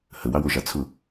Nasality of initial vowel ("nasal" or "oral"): oral